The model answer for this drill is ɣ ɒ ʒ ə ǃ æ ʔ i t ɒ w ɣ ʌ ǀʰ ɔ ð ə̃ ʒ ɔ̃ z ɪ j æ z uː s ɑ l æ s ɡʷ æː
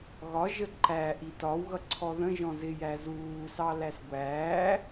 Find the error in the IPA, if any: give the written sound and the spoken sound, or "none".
none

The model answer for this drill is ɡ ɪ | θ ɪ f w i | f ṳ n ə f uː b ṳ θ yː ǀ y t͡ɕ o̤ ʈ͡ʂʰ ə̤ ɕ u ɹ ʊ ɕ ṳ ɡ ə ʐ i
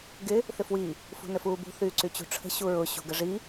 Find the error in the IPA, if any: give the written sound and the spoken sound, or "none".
o̤ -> ṳ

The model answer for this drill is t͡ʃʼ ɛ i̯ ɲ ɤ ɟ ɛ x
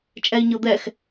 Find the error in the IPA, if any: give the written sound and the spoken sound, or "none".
ɟ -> d̪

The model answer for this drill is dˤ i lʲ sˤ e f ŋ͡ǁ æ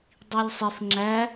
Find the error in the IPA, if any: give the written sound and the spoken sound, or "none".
none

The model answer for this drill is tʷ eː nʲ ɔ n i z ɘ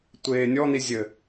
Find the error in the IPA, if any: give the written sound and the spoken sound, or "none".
z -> zʲ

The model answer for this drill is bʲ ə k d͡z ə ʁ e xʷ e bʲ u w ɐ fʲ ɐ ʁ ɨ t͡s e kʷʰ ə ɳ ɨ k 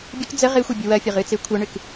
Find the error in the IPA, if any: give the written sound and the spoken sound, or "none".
none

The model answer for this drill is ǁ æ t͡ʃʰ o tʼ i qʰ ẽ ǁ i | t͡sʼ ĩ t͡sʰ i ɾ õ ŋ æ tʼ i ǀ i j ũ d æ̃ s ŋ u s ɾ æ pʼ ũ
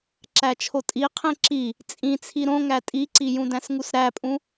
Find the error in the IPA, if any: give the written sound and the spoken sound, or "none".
none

